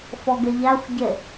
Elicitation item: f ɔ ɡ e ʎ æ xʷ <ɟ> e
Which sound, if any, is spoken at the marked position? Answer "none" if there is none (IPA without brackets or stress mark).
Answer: ɟ